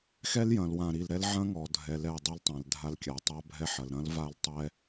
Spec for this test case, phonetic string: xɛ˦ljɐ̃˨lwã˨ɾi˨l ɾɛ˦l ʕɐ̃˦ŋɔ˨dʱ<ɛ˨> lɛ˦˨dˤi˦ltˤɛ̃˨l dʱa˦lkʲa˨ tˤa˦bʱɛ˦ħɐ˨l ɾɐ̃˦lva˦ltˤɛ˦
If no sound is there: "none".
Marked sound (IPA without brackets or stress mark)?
ɛ˨